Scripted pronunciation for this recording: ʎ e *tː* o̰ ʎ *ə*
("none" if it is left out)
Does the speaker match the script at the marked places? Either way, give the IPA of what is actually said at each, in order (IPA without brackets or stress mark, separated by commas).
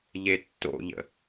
tː, ə̰